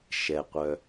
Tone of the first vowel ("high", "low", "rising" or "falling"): low